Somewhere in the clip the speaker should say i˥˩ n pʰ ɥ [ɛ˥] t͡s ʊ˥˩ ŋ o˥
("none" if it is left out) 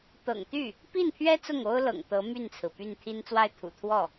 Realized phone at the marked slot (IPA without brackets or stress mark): ɛ˥